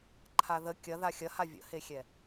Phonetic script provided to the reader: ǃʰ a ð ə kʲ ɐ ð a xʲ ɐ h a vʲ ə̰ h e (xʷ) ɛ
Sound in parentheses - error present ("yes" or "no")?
yes